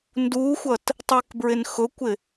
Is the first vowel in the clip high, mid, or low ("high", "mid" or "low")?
high